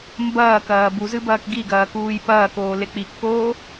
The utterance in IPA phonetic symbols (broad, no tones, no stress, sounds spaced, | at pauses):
m b ɐː k ɐː b u z ɨ b ɐː k ɡ i ɡ ɐː k uː j p ɐː k oː l e k͡p i kː oː